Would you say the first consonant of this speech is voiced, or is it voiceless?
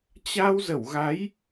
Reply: voiceless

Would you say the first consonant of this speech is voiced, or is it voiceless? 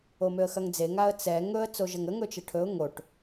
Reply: voiced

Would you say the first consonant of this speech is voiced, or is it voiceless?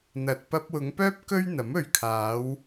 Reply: voiced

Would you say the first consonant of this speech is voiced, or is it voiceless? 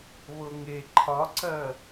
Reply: voiced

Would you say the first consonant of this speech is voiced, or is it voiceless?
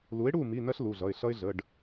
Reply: voiced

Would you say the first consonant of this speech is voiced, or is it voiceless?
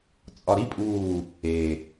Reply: voiceless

